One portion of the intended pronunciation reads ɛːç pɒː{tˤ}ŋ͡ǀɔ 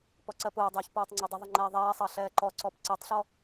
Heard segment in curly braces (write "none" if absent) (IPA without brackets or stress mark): tˤ